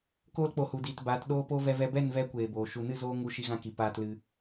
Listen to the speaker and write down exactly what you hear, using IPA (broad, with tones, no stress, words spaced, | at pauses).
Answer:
koː˧lk͡po˨hu˨ diː˨t baː˨˦tɗoː˦po˦ vɛ˧vɛ˧ bɛ˦˨nvɛ˧ kʷeː˨boː˨ ʃu˨nɨ˦˨zoː˧ ŋu˧ʃi˧ɣã˧ki˨ paː˧tlɨ˧